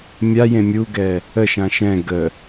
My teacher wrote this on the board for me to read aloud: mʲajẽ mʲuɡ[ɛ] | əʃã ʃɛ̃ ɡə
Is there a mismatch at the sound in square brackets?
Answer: no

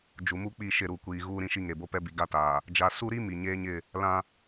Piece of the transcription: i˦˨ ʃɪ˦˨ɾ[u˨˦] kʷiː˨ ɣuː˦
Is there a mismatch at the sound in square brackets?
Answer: yes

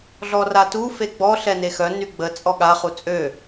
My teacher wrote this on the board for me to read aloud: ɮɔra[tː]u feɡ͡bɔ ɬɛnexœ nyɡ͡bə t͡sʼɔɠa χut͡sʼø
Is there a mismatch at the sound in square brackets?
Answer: yes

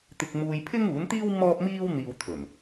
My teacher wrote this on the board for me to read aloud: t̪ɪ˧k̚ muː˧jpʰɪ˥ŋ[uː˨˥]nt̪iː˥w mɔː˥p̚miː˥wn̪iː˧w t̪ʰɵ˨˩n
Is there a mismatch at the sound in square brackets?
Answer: no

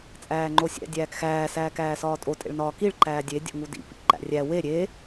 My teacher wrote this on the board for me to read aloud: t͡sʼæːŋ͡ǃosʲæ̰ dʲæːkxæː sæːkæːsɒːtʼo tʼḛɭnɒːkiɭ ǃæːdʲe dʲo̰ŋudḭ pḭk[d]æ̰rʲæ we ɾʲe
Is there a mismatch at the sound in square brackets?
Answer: yes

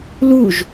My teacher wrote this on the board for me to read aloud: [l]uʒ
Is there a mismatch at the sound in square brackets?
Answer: no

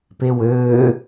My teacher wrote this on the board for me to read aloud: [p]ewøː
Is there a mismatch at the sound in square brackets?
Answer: no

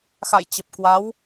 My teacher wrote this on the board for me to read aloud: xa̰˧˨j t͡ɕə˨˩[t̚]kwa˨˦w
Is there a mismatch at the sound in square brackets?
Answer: yes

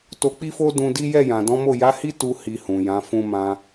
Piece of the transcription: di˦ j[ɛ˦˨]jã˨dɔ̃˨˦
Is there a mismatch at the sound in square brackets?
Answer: no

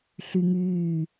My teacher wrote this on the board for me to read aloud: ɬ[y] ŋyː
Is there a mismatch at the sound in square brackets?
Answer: no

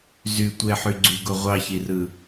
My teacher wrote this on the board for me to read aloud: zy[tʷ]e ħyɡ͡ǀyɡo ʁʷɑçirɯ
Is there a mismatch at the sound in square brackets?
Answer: no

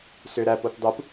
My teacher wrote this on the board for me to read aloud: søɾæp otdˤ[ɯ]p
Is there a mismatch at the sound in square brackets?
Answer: no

